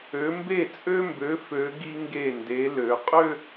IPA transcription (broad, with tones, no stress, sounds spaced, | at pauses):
ø˩˧ m b e˧˩ t͡sʼ ø˧ m b ø˩˧ f ø˩˧ ɡ i˧ ŋ ɡ e˧˩ n d e˩˧ l ø˩˧ qʼ ø˥˧